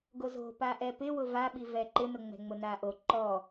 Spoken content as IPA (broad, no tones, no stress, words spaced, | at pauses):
ɡozo̤ paʔɛpɪ wʊvaɓivɛ ǃɪnʊŋ͡mɛ̤ŋ͡mʊ naʔo ǃɔ